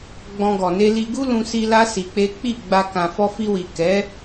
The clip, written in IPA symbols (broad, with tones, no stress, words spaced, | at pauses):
ɡ͡bɔ̃˧ɡɔ˨ ne˧li˧ ɡu˦lũ˧si˧ la˦ si˧k͡pe˦ k͡pi˦˨ɡ͡ba˧ kã˨fɔ˧fi˧wi˨ kɛ˨˦